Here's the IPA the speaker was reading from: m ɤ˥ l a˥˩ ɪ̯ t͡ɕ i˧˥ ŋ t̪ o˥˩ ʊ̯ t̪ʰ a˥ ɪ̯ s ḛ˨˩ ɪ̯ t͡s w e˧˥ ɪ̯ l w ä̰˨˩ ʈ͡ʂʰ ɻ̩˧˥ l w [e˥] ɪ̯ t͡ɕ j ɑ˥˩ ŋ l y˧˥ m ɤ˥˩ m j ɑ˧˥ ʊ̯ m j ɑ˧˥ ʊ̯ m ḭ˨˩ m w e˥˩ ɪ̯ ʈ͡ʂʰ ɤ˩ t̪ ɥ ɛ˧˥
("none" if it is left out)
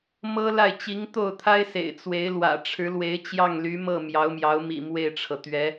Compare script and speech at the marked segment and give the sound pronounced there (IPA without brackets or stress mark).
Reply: e˧˥